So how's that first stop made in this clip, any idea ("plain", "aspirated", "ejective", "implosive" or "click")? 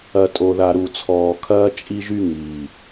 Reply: ejective